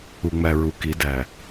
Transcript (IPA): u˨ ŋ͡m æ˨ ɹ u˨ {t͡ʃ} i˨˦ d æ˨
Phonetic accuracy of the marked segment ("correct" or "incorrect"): incorrect